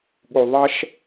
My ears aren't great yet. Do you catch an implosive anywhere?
yes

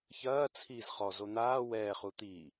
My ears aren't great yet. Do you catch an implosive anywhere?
no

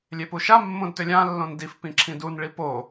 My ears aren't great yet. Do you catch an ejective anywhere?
no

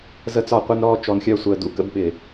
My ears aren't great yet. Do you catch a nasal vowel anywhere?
no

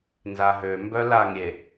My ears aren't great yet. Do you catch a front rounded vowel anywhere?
yes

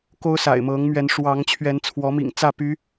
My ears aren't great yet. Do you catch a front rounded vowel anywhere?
yes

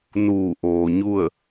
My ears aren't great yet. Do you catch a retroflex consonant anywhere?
no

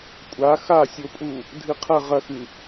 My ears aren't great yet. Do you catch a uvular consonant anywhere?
yes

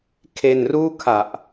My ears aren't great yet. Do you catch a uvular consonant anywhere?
no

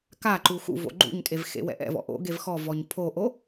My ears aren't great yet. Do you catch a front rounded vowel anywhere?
no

